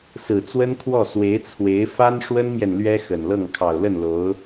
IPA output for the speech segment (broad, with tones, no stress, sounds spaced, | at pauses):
s ɹ̩˨˩ t͡s w ə˥ n kʰ w ɔ˥˩ s w e˧˥ ɪ̯ t͡sʰ w e˧˥ ɪ̯ f a˥ n ʂ w ə˥ n m j ɛ˨ n l ɥ ɛ˥ x ə˨˩ n l ɤ˥˩ ŋ kʰ ɑ˨˩ ʊ̯ l ə˥˩ n l o˧˥ ʊ̯